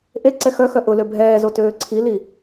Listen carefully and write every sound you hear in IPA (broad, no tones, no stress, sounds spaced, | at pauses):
ʔ e ǀ ɛ x œ x œ ʔ ʊ l ø bʱ ɛː z o t øː ǀʰ i l i